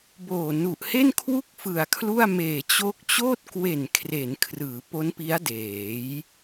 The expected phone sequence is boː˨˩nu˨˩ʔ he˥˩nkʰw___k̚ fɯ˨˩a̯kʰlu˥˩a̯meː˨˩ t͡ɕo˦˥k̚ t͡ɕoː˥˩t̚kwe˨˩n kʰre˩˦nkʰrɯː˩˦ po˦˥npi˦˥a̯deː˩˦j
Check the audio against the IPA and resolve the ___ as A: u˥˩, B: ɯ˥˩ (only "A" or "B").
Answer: A